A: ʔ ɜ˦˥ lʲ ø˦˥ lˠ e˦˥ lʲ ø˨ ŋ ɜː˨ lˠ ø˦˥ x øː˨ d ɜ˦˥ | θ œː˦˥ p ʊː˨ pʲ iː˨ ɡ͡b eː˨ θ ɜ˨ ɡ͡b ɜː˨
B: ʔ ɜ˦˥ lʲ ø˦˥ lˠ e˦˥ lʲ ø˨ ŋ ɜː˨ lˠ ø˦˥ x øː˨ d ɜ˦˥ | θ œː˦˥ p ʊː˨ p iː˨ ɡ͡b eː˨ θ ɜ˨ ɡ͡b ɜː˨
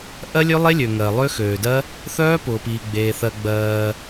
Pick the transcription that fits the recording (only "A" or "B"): B